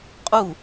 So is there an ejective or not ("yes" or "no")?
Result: yes